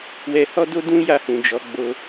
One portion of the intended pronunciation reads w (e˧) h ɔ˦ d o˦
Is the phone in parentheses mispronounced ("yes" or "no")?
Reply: yes